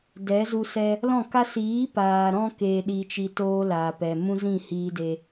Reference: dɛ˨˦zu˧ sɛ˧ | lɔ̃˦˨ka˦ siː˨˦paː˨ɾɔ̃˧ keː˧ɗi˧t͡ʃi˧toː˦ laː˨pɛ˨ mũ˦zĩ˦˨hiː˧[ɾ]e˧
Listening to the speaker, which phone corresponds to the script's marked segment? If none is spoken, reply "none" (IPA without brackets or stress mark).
d